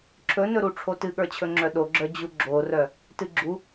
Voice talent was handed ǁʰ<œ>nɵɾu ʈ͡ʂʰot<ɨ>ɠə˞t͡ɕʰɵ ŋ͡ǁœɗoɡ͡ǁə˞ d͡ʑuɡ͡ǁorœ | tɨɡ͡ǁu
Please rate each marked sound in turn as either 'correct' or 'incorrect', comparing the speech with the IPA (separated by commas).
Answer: incorrect, correct